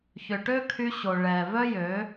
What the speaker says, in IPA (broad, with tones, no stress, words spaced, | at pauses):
çʏ˨ʈø˦kʰy˧ ɕo˨ɭɛ˨ vœ˦jø˨˦